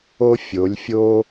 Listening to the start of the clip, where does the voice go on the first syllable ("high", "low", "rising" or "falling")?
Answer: high